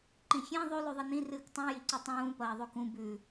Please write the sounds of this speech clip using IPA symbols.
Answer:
ǃ ĩ xʲ ẽ ðˤ ʉ l ʉ ðˤ i n ĩ r ɨː k tˤ ũ j i ǀ ʉ tˤ ũː p ɐː ðˤ ʉ k ũ b ʉ

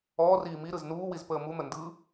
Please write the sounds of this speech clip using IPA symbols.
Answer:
ɔː r iː m i ɾ ɯ z n uː w i z p əː m u n̪ ə n d ɯ

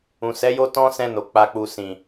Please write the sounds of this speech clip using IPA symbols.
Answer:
ũ˨ s ɛ˨˦ j o˦ t ɔ̃˦ s ɛ̃˧ n o˨ k͡p a˨ k͡p u˨ s ĩ˨

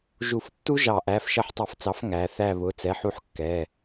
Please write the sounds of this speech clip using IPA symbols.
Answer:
ʒ u˧˩˧ f tː u˥ ʒ ɑ˧˩˧ ʔ æ˩˧˩ f ʃ ʌ˦˨ ħ tˤ u˧˩˧ f t͡s ɑ˩˥ f ŋ æ˩˧ θ æ˦˨ β ʊ˩˧˩ t͡s ɛ˩˧˩ ħ u˦˨ ħ kː ɛ˩˧˩

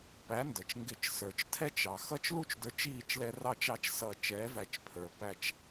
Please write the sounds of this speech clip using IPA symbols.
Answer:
p æ˨˥ n d ə˩ t͡ʃ ŋ ɡ ɪ˧˩˧ t͡ʃ s ə˞˩ t͡ʃ tʰ ɛ˦ t͡ʃ ɑ˩ x ʌ˦ t͡ʃ l u˦ t͡ʃ d ə˞˨˥ t͡ʃ iː˥˩ t͡ʃ l ɛ˦ r ɑ˥˩ t͡ʃ ɑ˦ t͡ʃ s ʌ˧˩ t͡ʃ ɛː˨˥ v æ˧˩ t͡ʃ pʰ ə˞˩ p æ˧˩ t͡ʃ

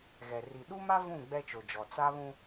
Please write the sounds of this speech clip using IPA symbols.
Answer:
ɣ ɛ˨ r i˨ ɗ u˦ m a˦ v ũ˦˨ ɡ͡b ɛ˦ t͡ʃ o˨ d͡ʒ ɔ˨ t͡s a˦ β ũ˦

